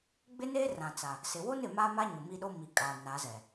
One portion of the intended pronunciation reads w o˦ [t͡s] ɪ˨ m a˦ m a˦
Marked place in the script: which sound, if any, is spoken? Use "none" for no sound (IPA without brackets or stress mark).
n